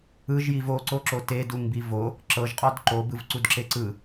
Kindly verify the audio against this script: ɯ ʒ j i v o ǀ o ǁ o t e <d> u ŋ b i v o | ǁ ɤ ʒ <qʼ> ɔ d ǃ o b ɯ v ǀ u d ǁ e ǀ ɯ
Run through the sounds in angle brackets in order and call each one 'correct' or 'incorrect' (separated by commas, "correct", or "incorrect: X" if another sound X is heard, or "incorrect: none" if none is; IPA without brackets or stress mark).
correct, correct